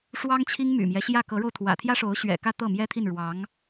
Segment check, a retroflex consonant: present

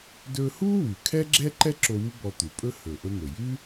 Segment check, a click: present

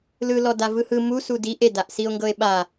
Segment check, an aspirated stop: absent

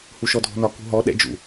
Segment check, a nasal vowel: absent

